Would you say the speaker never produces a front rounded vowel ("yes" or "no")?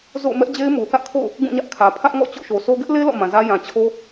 yes